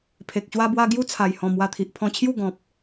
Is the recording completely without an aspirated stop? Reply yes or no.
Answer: no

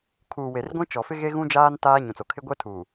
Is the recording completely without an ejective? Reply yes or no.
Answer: yes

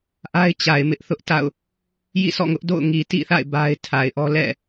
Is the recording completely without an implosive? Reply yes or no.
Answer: yes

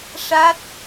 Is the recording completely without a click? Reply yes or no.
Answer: yes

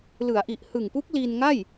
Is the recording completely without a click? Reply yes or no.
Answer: yes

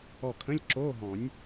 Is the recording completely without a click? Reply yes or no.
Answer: no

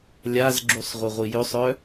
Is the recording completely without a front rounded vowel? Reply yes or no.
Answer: no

